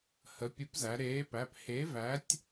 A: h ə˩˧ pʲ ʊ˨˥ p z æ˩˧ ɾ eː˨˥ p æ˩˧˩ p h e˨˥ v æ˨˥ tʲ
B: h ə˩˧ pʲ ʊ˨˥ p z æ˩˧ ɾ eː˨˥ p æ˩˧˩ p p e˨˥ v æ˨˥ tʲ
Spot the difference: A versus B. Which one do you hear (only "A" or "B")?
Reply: A